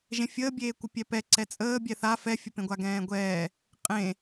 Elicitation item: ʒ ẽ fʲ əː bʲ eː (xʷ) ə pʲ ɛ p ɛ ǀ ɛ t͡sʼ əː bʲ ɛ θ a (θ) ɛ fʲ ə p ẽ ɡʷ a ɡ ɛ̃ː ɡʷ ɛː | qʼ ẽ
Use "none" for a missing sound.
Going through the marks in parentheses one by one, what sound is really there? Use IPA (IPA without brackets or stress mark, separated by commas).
kʷ, f